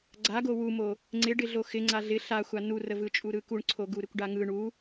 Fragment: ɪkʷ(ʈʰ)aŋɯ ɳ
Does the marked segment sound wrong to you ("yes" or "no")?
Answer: yes